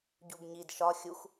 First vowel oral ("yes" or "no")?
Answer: yes